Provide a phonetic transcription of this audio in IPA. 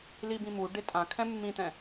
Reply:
l i b ĩ m u ɖ e tʼ ã kʰ ɛ̃ mː ĩ t̪ ɛ̃

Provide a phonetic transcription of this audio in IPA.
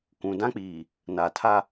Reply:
k ũ˨ d ã˦ k͡p iː˨ | n a˨ tʰ a˦

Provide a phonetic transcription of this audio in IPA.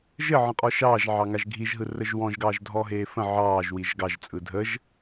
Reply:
ʒ ɘ ʕ ə̃ qʼ ɔ ʃ ɑː ʒ ʕ ɑ ŋ a ʒ ɡʱ i ʒ ɦ ɯ r ə ʒ w ɔ̃ ʒ ɡ ɑː ʒ dʱ ɔ ɦ eː f ə̃ ʕ ɑː ʒ w i ʒ ɡ ɑ ʒ t͡sʼ ɯ dʱ ə ʒ

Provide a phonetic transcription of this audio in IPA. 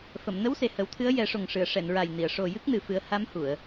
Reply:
f ə˨˩˨ m n ə˧˥ w s e˨˩ h ə˨˩˦ w t̪ʰ ɨ˧˥ ə̯ j ɛ˨˩˦ ʂ o˨˩ ŋ ʂ ɨ˨˩˨ ə̯ ʂ ɛ˨˩˨ n ɹ a˨˩ j n i˨˩˨ ə̯ ʂ o˨˩ j ɨ˦˥ k̚ n ɨ˨˩ f ɨ˨˩˦ ə̯ h a˧˥ m h u˨˩˨ ə̯

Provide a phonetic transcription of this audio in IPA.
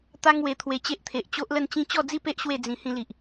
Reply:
t̪ a˦ ŋ w e˧ t̪ʰ w e˧ t͡ɕ e˦ ʔ t̪ʰ e˨ ʔ t͡ɕ o˦ ʔ l ə˥˧ n t͡ɕ ĩ˦ t͡ɕ ɔ˥˧ d͡z i˥˧ p e˦ ʔ ɕ w e˥˧ d͡z ĩ˧ h ĩ˧ l i˨ ʔ

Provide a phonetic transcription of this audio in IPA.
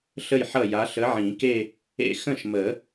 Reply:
ɬ ə˥˩ j ħ ʌ˥˩ j a˨˥ ɬ ə˨˥ ʕ ĩ˨˩˦ k e˥˧ | ḛ˥˩ x ə̃˥˩ ʃ m ə˨˩˦

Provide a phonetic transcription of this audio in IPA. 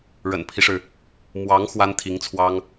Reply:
ɻ ə̰˨˩ n pʰ i˦ ʂ ɻ̩˩ | m w ɑ˧˥ ŋ x w a˥ n t̪ʰ i˧˥ ŋ t͡sʰ w ɑ˥ ŋ

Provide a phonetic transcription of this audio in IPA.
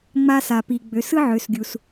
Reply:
ŋ͡m a˧ s a˩ p i˩ ɡ͡b ø˩˧ s ɯ˥ ʕ ø˩˧ s ɡʲ u˩ s

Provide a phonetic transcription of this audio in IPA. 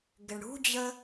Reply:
ɡ ɪ ɳ ɽ ṳ d͡ʑ ə

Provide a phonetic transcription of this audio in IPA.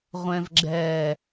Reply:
ʁʷ ɛ̃ v ɡ͡ǁ ɛ

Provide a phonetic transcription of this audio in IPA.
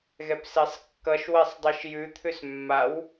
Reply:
ɣ ɛ p s e sˤ kː ʌ ʃ w ɛ sˤ dˤ i ʃ j ʉ t̪ʰ ʉ s mː a w

